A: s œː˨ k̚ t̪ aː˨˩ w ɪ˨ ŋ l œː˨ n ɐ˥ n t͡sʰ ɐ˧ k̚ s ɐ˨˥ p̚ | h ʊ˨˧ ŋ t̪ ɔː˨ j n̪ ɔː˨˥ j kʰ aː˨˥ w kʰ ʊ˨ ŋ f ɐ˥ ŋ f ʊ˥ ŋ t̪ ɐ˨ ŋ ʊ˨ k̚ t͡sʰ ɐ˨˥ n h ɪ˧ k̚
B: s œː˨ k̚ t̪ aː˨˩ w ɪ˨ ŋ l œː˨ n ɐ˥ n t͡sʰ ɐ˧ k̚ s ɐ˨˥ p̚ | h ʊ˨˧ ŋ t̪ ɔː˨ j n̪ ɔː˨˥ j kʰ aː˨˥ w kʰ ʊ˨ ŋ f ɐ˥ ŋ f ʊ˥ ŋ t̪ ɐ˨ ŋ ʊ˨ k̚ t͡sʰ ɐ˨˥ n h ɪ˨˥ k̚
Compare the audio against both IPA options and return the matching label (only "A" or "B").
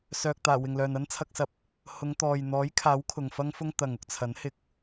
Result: A